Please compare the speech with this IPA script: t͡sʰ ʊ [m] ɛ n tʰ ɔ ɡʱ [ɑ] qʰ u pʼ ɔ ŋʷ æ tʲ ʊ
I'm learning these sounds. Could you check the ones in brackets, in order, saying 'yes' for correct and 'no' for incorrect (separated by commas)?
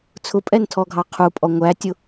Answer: no, yes